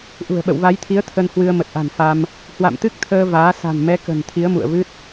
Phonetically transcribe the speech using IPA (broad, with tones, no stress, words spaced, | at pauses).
ʔṳ˨˩ə̯ɓə̰˧˨wva˨˦jt̪ʰi˨˦ə̯ t̪ʰə˧nhwɨ˧ə̯ mə˨˩t̚ʔa̤˨˩nfa˧m | hwa̰˧˨mt̪ɨ˦˥k̚t̪ʰəː˧ vaː˨˦ sa̤˨˩nmɛ˨˦kə̤˨˩n t̪ʰi˨˦ə̯mṵ˧˨ə̯vɨ˦˥t̚